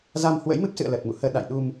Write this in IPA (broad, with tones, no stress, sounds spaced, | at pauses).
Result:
z a˧ m h w ə̰˧˥ j m ɨ˦˥ p̚ s ɨ̰˧˨ ə̯ l ə˨˩ t̚ m ṵ˧˨ h əː˧ ɗ a̰˧˨ j ɗ u˧ m